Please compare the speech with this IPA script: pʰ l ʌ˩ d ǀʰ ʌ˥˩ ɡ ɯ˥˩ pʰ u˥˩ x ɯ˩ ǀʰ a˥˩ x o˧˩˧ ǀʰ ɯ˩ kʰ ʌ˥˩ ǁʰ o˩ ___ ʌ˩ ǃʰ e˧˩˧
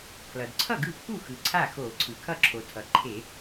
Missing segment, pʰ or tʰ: tʰ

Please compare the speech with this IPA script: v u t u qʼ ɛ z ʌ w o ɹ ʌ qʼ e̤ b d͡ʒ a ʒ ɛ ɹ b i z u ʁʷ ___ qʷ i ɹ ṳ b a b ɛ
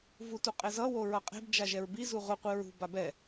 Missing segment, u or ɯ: ɯ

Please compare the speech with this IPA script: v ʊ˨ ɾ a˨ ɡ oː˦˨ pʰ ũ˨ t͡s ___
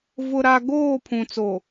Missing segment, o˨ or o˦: o˨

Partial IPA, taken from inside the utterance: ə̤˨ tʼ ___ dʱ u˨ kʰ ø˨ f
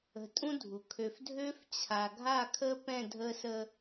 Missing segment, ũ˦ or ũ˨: ũ˦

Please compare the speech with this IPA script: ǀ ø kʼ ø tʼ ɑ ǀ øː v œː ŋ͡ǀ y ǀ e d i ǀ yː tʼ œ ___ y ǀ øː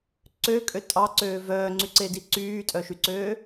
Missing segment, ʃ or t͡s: ʃ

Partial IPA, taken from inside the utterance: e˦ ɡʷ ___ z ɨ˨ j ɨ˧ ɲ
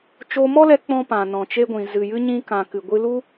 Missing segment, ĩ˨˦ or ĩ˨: ĩ˨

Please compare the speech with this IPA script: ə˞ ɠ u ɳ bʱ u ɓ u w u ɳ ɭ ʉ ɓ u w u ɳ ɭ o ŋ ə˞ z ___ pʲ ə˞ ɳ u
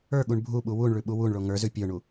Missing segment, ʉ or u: ʉ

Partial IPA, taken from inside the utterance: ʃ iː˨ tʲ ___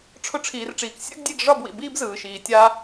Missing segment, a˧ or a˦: a˧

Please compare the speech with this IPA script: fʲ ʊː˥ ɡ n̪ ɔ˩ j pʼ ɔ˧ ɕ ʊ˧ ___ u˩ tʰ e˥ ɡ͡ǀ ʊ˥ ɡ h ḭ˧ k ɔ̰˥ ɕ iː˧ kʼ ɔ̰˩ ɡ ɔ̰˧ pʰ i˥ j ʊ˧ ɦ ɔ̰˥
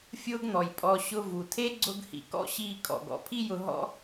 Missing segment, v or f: v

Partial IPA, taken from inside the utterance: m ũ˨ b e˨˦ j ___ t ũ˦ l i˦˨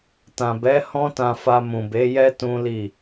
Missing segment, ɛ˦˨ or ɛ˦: ɛ˦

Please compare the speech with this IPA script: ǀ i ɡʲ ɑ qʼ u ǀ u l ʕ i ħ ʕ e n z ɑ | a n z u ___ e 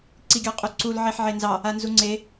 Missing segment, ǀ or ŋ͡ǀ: ŋ͡ǀ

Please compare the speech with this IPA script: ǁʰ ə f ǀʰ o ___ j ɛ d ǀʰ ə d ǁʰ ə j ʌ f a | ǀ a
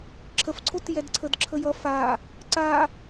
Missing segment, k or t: t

